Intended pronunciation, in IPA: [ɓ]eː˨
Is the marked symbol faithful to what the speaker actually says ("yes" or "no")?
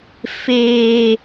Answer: no